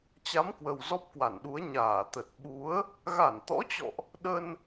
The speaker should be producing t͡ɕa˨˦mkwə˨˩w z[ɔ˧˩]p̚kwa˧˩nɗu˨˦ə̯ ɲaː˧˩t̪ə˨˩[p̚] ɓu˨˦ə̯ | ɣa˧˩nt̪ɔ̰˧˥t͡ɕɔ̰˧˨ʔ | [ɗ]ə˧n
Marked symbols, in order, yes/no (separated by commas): no, no, yes